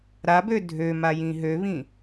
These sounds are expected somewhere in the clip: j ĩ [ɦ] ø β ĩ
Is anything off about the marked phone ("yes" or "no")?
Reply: no